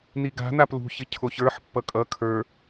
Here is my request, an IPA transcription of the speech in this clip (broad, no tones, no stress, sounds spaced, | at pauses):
n i ɡ a̤ n a p l ṳ ç ɪ cʰ o ç ə˞ ħ pː ʌ kʼ ʌ kʰ ə˞